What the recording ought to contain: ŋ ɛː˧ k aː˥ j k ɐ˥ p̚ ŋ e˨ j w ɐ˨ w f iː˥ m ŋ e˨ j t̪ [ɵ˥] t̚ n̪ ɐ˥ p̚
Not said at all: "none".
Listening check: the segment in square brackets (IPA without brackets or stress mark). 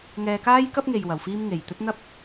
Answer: ɵ˥